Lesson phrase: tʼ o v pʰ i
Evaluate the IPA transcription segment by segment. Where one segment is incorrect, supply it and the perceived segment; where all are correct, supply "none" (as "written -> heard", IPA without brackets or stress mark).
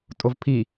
none